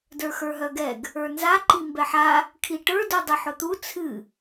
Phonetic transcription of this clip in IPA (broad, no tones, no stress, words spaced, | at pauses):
də˞xə˞ɦœɡɛɡ | ə˞nza ǃimbɛħa | kʰiʈə˞ dudˤɨħʊt̪u t͡sʰɨ